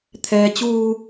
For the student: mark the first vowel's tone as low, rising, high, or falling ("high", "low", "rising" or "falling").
low